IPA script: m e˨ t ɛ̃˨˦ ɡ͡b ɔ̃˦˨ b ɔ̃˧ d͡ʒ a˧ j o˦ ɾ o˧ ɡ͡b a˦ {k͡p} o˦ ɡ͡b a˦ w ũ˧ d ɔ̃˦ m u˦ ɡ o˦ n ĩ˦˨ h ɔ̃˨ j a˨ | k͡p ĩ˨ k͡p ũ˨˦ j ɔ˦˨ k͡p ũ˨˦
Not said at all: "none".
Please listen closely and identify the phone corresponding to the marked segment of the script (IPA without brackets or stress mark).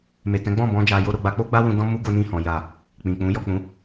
k͡p